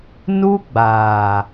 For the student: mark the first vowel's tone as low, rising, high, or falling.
high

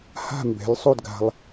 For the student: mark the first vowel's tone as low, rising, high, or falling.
falling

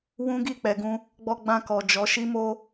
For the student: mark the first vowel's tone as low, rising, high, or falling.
high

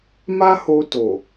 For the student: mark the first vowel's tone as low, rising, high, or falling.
high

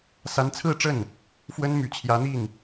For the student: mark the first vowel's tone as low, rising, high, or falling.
rising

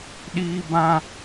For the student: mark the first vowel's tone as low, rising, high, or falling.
high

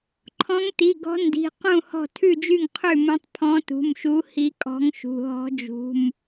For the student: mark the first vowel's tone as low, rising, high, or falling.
rising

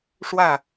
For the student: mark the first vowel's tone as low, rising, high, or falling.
falling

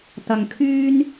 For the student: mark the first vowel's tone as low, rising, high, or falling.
low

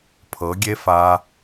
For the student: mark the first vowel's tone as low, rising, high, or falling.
rising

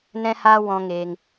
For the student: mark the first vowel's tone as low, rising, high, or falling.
high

